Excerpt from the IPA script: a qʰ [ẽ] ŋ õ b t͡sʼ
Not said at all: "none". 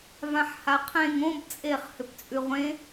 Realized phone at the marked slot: ẽ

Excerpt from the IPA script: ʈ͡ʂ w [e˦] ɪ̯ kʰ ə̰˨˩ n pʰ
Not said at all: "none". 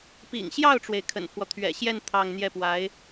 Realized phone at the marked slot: e˩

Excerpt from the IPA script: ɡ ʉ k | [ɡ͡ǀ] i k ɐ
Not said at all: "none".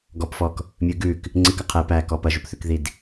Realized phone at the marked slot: ŋ͡ǀ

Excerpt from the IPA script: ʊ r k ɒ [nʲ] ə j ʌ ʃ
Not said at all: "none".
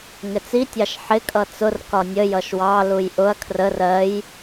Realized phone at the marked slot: nʲ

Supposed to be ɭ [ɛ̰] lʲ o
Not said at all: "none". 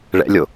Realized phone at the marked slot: ɛ̰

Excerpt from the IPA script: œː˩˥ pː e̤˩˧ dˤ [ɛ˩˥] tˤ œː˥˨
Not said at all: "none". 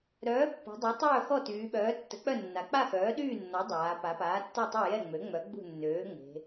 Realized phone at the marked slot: ɛ˩˥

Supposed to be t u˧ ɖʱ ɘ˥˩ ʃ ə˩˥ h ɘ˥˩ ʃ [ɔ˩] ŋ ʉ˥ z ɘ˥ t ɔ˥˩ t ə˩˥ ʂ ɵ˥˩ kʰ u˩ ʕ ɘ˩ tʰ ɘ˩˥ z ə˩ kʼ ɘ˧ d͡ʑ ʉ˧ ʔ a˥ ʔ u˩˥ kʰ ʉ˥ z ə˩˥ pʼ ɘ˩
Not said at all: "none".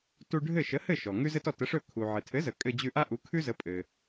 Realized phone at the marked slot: ɔ˩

